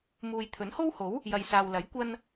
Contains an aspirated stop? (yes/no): yes